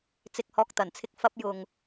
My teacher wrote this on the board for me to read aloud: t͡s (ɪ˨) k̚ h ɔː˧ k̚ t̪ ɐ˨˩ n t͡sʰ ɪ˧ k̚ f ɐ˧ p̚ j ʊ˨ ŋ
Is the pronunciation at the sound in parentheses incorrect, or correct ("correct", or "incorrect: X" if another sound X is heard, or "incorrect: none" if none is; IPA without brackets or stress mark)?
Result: correct